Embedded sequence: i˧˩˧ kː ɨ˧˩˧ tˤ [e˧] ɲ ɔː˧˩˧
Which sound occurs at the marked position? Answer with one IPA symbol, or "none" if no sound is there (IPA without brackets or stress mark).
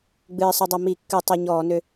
e˧